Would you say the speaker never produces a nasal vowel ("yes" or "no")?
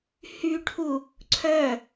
yes